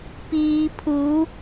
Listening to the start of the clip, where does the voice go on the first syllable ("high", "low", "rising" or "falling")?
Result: low